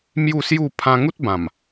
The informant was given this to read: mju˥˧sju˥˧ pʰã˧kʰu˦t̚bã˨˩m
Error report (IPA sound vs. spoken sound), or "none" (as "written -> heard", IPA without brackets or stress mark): kʰ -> ŋ